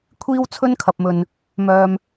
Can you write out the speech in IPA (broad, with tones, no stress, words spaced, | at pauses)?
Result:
kʷʰiː˥wt͡sʰɵ˥nkʰɐ˨p̚mɵ˨n | mœː˧m